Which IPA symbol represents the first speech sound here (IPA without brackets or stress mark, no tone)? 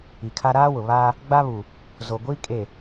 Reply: i